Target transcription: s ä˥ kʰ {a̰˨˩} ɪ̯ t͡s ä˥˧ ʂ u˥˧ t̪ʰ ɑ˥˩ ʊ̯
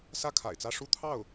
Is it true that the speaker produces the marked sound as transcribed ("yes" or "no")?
yes